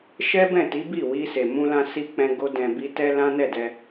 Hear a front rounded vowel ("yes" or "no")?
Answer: no